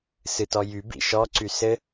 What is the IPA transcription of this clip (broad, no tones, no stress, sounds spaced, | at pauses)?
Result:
s ɨ t ɔ j y b ḭ ʃ ɔ ǀ y s ɘ